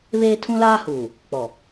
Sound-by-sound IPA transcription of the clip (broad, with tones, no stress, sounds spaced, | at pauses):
β eː˦ tʰ ũ˦ l aː˦ h uː˨ | k͡p ɔ˨